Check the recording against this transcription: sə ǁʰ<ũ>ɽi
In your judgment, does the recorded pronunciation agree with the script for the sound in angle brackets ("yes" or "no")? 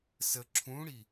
yes